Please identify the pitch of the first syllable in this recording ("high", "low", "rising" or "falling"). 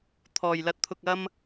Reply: low